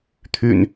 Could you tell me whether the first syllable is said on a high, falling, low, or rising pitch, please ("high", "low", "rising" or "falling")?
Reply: low